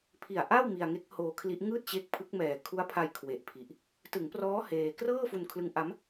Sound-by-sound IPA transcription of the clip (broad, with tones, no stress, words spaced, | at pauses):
pʰi˨˩a̯ʔa˥˩w mi˧a̯ ŋe˦˥k̚hoː˧kʰli˦˥ʔ ŋɯː˥˩t̚t͡ɕe˦˥k̚pʰɯ˦˥k̚mɛː˨˩ kʰu˦˥a̯pʰa˧j kʰwe˨˩ʔpʰi˨˩ʔ | tɯ˩˦ŋprɔː˦˥ heː˧ krɤː˥˩fu˧nkʰlɯ˦˥ŋʔa˦˥m